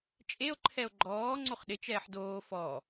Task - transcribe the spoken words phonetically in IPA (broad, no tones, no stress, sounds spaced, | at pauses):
t͡ʃʼ e o̯ ǃʰ ɛ o̯ ɡ͡ǃ ɔː ŋ͡ǀ o χ ɗ ɪ t͡ʃ ɛː ħ d oː f ɔ